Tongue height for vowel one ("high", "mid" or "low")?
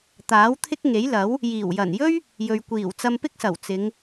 low